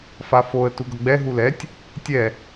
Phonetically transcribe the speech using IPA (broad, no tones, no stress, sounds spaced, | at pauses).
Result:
f a f o ə̯ t u ɡ ʌ ɡ͡b ɛ ɦ u l ɛ tʲ | tʲ ɛ